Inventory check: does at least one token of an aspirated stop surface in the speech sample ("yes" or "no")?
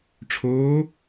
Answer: yes